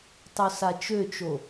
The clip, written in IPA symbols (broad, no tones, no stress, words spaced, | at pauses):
tˤosat͡ʃøt͡ʃo